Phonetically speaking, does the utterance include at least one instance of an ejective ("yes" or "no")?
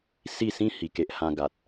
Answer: no